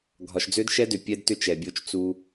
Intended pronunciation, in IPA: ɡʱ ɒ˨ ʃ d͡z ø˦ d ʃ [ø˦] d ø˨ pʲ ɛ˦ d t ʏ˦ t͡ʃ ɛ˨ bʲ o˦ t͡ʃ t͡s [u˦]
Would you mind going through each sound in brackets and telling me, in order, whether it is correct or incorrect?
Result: incorrect: ɛ˦, correct

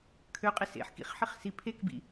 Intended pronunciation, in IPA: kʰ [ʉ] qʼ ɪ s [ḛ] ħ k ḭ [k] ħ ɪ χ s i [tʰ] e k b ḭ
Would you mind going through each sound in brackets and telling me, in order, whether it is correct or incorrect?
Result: incorrect: ø, correct, incorrect: χ, incorrect: pʰ

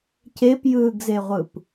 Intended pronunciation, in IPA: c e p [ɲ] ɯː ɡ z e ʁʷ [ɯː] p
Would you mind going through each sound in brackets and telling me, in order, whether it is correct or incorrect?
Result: incorrect: j, incorrect: ɯ

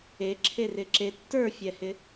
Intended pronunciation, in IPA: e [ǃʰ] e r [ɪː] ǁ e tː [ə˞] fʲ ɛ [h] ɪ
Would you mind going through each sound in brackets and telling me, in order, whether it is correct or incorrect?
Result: incorrect: ǁʰ, incorrect: ɪ, correct, correct

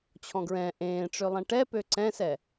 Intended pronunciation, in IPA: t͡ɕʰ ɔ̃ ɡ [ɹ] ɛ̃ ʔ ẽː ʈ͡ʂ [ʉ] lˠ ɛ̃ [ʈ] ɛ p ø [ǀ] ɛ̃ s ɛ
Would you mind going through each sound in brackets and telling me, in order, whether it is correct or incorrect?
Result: correct, incorrect: ø, correct, correct

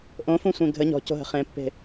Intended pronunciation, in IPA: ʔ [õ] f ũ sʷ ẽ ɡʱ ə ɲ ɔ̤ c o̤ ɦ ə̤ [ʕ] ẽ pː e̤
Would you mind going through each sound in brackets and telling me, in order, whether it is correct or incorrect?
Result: correct, incorrect: χ

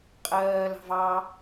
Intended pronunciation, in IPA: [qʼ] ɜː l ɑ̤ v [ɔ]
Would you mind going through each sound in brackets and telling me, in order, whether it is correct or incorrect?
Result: correct, incorrect: ɑ

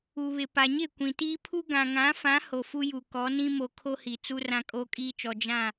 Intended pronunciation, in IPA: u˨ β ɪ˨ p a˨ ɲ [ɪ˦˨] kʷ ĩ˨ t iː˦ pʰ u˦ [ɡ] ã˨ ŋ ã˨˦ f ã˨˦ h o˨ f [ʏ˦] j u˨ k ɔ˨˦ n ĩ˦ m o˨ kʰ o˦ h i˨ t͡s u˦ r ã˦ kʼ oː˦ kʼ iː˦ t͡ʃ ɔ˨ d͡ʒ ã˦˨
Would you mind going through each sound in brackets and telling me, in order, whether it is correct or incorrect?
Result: correct, correct, incorrect: u˦

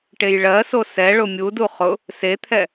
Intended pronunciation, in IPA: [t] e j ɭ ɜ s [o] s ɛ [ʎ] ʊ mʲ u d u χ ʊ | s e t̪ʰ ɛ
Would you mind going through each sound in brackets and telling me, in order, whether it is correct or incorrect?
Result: incorrect: ʈ, correct, incorrect: ɭ

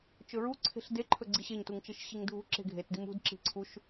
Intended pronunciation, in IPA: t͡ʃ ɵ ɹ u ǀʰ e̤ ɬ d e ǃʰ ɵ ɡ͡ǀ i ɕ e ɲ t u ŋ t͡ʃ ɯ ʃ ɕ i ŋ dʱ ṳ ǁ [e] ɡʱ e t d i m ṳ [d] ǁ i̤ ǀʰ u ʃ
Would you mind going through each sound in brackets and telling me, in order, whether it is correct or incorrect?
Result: incorrect: e̤, correct

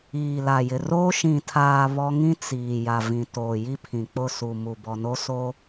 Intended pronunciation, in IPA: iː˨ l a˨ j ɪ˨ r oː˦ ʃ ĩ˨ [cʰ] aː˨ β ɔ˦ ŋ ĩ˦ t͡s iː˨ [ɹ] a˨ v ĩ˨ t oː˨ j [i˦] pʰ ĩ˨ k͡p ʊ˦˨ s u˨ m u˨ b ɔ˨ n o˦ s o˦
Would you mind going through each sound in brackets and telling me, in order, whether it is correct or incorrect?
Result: incorrect: tʰ, incorrect: j, correct

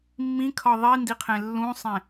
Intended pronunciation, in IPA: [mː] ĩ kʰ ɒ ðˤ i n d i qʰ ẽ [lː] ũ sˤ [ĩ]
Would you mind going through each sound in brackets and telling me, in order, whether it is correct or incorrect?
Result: correct, correct, incorrect: ẽ

